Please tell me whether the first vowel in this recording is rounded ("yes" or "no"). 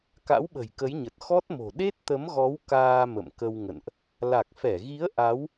no